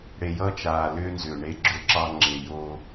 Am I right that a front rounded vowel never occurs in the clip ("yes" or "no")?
no